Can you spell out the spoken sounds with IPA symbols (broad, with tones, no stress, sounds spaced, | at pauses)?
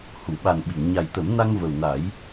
h u˨˩˨ ɓ a˨˩ n ɓ i˨˩˨ ŋ ɲ a˨˩ j t̪ ə˨˩˦ m n a˧ ŋ v ə˨˩ w n a˨˩˦ j